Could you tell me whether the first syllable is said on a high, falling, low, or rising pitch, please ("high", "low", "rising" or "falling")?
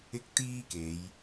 high